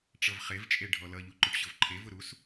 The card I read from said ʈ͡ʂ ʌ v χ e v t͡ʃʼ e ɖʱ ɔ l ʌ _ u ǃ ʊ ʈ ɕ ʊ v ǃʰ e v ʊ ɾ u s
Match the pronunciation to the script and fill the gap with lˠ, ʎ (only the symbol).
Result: ʎ